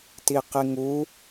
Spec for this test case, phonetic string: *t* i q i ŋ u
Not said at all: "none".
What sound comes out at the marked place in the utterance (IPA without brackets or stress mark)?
t